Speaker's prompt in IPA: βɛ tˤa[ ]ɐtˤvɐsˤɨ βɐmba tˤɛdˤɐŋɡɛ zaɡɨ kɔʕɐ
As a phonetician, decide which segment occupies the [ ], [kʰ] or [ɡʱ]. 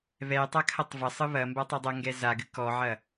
kʰ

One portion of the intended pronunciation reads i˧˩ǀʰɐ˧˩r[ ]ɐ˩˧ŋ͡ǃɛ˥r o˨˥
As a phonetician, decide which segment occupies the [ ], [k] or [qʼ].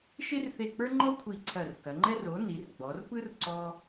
k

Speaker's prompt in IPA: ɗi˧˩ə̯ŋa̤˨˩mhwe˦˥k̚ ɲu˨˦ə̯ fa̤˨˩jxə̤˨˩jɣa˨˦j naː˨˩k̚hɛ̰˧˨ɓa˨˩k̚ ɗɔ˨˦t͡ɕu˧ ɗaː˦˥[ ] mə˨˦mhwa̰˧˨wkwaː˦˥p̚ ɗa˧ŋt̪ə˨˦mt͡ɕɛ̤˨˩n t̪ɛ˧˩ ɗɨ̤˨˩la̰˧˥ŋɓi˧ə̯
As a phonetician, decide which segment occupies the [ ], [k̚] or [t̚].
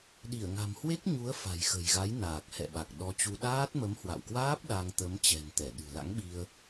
t̚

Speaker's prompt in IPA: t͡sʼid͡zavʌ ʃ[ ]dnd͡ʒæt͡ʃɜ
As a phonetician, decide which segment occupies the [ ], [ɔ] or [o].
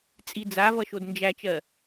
o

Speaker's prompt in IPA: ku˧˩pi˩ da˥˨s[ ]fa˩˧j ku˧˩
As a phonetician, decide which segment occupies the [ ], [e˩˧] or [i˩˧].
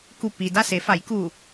e˩˧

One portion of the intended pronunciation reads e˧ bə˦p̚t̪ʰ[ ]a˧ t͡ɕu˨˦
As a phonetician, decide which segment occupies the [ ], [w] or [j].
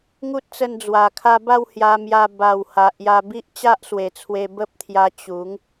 j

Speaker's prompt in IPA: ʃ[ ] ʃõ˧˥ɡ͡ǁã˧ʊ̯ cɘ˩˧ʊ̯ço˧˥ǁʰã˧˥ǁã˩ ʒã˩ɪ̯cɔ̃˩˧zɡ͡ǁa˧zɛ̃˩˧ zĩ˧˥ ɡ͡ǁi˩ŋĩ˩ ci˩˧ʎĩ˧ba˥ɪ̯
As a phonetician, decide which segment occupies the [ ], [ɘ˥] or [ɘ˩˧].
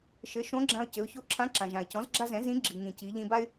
ɘ˩˧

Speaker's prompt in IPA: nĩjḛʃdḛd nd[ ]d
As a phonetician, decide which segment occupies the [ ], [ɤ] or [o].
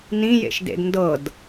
ɤ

